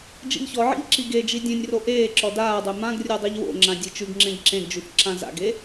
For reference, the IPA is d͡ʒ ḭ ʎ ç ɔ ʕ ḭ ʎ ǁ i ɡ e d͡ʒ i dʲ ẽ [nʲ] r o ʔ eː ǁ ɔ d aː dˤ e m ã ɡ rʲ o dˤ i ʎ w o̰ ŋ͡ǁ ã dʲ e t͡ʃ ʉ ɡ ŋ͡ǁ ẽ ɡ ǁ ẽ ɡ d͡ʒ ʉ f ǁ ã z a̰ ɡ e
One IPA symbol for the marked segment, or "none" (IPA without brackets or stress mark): nʲ